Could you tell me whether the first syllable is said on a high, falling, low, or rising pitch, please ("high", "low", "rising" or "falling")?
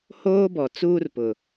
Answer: high